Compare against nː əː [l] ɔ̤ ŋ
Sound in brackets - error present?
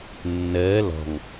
no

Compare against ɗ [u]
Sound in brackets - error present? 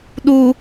no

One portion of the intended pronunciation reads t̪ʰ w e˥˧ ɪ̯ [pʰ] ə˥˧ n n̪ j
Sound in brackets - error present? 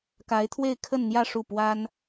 yes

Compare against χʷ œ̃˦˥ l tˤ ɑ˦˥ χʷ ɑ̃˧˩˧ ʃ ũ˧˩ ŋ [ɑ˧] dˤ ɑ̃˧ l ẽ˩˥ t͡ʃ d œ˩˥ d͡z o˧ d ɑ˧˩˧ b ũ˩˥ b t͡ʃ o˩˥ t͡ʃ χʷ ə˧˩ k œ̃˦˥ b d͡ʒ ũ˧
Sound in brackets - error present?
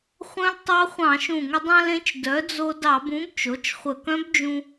yes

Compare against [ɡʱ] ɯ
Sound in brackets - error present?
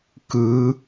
yes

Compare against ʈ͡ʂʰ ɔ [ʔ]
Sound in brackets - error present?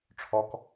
yes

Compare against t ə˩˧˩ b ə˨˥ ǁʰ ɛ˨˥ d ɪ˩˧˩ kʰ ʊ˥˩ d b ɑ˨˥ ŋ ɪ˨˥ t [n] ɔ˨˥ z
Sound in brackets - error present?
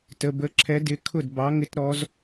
yes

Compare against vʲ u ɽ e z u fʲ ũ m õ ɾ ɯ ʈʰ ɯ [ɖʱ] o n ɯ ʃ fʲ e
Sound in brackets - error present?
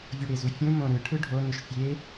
no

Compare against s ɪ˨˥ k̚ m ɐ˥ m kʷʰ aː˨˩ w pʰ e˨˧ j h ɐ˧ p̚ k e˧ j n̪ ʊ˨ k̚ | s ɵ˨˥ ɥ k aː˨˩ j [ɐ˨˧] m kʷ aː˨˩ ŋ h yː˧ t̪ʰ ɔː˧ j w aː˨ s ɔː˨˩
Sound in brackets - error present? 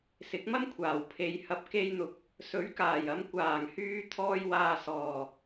no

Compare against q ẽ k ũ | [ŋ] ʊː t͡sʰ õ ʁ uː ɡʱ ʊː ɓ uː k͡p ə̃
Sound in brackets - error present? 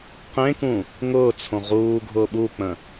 no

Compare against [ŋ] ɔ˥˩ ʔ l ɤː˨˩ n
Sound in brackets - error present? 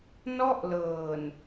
yes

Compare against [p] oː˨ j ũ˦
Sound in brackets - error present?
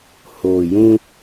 yes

